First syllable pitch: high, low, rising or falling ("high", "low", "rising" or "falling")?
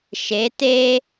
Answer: rising